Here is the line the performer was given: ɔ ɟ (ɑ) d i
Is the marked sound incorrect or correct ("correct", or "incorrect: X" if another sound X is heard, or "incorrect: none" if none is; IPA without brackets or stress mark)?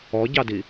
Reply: correct